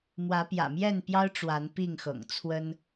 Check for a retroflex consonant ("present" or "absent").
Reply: present